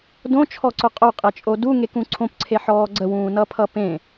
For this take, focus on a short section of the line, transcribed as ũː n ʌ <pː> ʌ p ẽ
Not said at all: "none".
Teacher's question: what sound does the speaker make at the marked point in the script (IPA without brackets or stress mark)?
pʰ